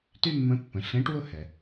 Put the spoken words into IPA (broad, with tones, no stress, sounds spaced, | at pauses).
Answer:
t y˥ mː ə̃˧˥ pː ə̃˩˧ ɬ ẽ˧˥ ʈ w ʊ˥ h ɛ˩